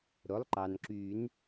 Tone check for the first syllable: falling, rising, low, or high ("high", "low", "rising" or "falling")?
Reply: rising